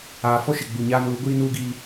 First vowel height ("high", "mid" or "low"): low